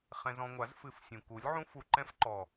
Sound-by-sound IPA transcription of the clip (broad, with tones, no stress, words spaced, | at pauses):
χɛ̃˧zɔ̃˧ŋʷa˨˦z fɨ˧f sʲũ˨ku˨˦lʲʕũ˦ fu˧ǃɛ̃˦fǃɔ˨